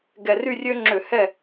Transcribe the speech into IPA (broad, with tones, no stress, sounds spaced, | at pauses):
ɡ ɛ˨˩ r y˦˨ rʲ ø˦ ŋ͡ǁ ø˧˩˧ h ɛ˦˨